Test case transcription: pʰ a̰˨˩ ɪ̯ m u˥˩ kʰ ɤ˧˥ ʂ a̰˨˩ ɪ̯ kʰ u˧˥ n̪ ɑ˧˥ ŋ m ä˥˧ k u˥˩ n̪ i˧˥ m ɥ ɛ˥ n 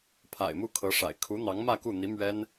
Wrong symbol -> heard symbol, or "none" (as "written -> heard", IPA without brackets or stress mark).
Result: none